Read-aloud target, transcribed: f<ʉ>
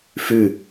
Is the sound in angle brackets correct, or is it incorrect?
correct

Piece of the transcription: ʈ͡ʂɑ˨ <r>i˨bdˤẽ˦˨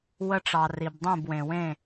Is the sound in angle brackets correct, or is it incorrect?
correct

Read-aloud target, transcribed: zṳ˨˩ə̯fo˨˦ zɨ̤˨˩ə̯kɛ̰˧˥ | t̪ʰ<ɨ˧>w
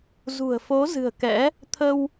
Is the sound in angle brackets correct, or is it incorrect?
incorrect: ə˧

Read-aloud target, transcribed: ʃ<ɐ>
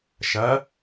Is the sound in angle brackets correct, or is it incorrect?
correct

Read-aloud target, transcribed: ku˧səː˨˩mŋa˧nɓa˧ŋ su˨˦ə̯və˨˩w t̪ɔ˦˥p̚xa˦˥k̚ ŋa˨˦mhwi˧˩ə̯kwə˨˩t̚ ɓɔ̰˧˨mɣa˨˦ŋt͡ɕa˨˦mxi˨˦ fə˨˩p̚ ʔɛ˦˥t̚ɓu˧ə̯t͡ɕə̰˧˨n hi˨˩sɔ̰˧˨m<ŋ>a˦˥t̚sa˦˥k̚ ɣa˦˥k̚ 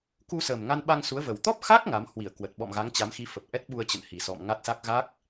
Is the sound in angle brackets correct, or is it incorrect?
correct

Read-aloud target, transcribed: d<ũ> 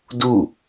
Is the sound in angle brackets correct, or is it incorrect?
incorrect: u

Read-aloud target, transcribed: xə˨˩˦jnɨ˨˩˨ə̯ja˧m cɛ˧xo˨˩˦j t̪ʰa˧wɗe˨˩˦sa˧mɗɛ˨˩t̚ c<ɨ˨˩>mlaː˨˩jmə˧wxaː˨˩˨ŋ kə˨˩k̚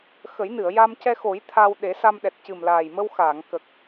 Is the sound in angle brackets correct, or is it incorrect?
correct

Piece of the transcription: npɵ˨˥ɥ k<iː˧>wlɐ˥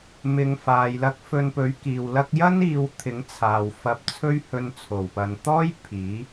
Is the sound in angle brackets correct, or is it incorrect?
incorrect: iː˨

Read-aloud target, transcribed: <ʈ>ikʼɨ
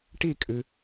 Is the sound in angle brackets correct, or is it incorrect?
correct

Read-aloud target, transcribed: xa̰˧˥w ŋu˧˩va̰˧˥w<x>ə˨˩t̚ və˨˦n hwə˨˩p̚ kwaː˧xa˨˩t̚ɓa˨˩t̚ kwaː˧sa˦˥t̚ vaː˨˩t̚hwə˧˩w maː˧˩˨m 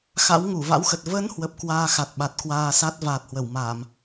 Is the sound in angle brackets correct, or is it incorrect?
correct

